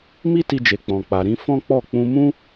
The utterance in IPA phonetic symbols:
mi˦ti˧d͡ʒe˨ k͡pɔ̃˨k͡pa˨ ɾĩ˨˦ fɔ̃˦k͡pɔ˦˨ k͡pũ˧mũ˦

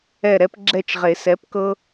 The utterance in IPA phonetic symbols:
ɛ˦˨ ɾɛ˦p ɡ͡ǁɛ˦˨t͡ʃʁe˨˩˦sɛ˨˥pkɤ˦

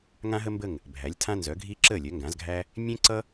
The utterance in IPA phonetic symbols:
ŋã˥ɦə˥mbə˥˨ŋ | bʱæ˨˥lʲtʰã˥nzœ˨˥ɡʱi˥ ǁəː˥˨ lʲœ˨˥ŋɡã˨˥zɡʱæ˥ | mʲẽ˥ǀʌ˥

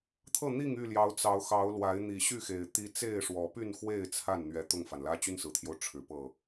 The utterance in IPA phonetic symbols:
t̪ʰɤ˥˨n̪i˥˨ŋy˥˨ljɑ˨˦ʊ̯ t͡sɑ˨˦ʊ̯xɑ˨˦ʊ̯lwa˨˦ɪ̯ n̪i˨˩ɕy˥˨xe˨˩ɪ̯ t̪i˦ t͡se˥˨ɪ̯ʂwɔ˨˦ py˥˨nxwe˥˨ɪ̯ t͡sʰa˥˨nn̪ɥɛ˨˦ t̪ʊ˥˨ŋfa˩nlä˦ t͡ɕy˦nsɹ̩˨˩t̪ʰjo˦ʊ̯ ʈ͡ʂʰɻ̩˨˦pɤ˥˨

